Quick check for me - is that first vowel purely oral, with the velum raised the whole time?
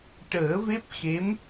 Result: yes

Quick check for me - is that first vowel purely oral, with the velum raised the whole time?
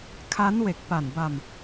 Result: yes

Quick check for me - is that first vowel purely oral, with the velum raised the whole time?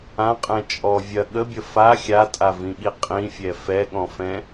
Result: no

